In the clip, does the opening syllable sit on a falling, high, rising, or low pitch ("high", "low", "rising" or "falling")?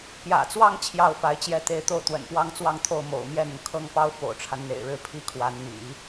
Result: low